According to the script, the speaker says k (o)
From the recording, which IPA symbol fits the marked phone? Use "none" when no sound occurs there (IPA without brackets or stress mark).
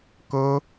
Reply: o